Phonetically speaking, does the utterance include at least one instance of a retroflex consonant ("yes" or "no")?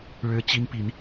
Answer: yes